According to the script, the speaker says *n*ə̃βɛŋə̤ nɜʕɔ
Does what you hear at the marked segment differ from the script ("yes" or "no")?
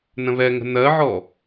no